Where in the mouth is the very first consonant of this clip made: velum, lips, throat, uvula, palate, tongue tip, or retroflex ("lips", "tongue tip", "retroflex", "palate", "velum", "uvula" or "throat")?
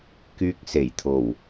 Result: velum